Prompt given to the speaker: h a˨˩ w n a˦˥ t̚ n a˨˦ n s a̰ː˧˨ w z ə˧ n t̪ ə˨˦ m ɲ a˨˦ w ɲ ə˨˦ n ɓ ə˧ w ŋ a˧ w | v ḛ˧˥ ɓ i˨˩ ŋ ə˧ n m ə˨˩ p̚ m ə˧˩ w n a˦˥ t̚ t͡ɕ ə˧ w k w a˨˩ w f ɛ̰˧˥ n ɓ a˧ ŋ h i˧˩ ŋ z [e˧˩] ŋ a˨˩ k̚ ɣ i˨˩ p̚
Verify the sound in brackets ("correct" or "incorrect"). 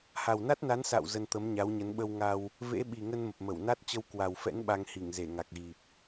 correct